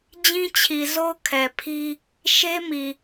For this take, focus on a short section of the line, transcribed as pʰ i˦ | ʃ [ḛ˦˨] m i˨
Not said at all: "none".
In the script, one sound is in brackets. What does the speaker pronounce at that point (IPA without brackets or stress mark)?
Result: e˦